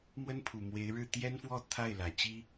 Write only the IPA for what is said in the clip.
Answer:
mwə˥npʰu˨˩mwe˧˥ɪ̯ ɻɻ̩˥˩ t̪jɛ˥nfwɔ˥˧ t̪ʰa˥˩ɪ̯lä˨˩t͡ɕi˥

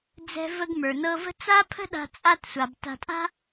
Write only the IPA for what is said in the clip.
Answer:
d͡zɛ̤˧və˧ɡ mə˞˨nɤ˧və̤˦ t͡sa˦pʰə̤˦ɗa̤˧ t͡sʼa˧tsʷa˨b ta̤˧tʼa̤˦

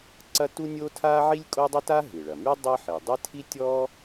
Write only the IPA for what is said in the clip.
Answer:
ǀɐ˥ tu˥nʲo˥tʰa˥ ʕi˥lʲkʼo˥dˤɪ˥ta˥ ɦɨ˩ɭɐ˩ my˥ dˤɨ˥ ħi˩dˤɪ˥tʰi˥ tʲɔ˥

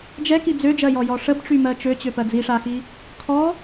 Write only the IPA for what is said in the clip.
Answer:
d͡ʒɛki d͡zød͡ʒɜjɔjɔ ʂəbʈ͡ʂymɜ t͡ʃøt͡ɕøpɜ d͡ziʂaxi | kʰɔ

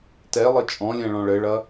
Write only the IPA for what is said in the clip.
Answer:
tɛlˠɘ t͡ʃʼɔ̃lʲɛ̃ ɭɔ̃ɭɘɭɐ

